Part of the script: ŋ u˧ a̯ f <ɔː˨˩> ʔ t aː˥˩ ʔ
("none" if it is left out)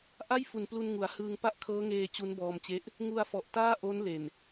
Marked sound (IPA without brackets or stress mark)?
ɔ˨˩